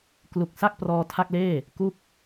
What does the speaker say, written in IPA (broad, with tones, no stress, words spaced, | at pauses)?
klu˨˩k̚sa˥˩k̚ prɔː˧tʰa˥˩k̚leː˥˩ | ku˥˩k̚